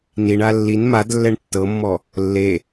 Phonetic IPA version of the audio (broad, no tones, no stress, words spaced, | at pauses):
niɳa lːin mad lːɛɳtːɤmːɔ | lːe